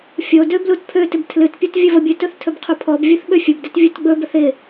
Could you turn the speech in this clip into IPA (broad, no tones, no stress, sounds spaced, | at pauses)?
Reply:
fʲ o d ø b l u t pʰ ø t ɪ b tʰ l ɨ t pʲ u t vʲ ɵ v ə bʲ ɨ t ɵ θ tʰ ɵ b qʰ u pʰ ɔ b vʲ u θ ɓ ø fʲ ɵ b d ɪ t vʲ u t ɡ͡b ɵ b ə θ ɪ